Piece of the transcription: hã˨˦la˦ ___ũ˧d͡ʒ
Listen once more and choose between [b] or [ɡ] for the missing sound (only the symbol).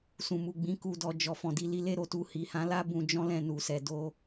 b